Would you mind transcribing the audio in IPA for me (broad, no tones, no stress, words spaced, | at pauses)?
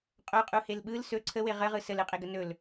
qʼoqʼuhel ɓɯl sɵ ǀʰəwe ʁəʁɯ səlɯqʼeɡə nɵl